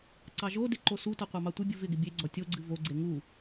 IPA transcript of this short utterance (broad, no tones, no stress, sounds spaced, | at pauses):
ǀ ɑ ʒ o d ɪ ǃ o s u t ɔ qʷ ɑ m ɑ tʷ ɪ bʲ ɨ v ɪ ɡ ɪ bʲ e ɡ͡ǀ ɔ tʲ o ɡ͡ǀ ɨ v o ɡ͡ǀ e ŋ u